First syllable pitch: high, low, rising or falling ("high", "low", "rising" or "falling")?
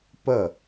falling